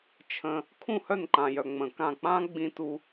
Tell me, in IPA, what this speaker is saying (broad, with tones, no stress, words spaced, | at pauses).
t͡ʃʰə̃˧ | kʰũ˦˨hœ˦˨nǃã˨jœ˨ ŋ͡mə̃˨kã˦˨ k͡pã˦ɡ͡bĩ˧ tu˧